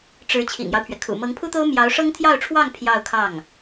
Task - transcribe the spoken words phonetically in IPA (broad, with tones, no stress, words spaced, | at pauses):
ʈ͡ʂɻ̩˧˥ t͡ɕʰḭ˨˩ŋjɑ˦ʊ̯pʰɥɛ˩kʰṵ˨˩ mɤ˧˥ŋpʰu˥t̪o˥ʊ̯ mjɑ˧˥ʊ̯ʂɤ˥ŋt̪ʰjɑ˥˧ʊ̯ʈ͡ʂʰwɑ˥˧ŋ pʰjɑ˥˧ʊ̯kʰɑ˥˩ŋ